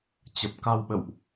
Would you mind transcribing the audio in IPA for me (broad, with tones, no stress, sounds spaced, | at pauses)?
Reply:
t͡ɕ ə˨˩ p̚ k a˧ w ɓ ə̰˧˨ w ʔ